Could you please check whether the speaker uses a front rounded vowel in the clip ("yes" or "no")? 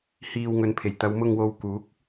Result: no